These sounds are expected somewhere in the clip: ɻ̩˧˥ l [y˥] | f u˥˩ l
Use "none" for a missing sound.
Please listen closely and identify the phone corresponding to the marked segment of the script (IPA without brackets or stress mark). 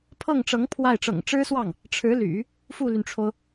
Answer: y̰˨˩˦